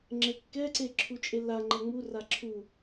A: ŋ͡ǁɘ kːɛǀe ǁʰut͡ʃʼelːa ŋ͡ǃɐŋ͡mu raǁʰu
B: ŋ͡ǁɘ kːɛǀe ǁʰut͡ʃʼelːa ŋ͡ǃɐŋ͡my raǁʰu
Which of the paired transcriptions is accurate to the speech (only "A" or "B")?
A